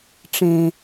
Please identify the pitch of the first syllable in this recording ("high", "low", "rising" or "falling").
low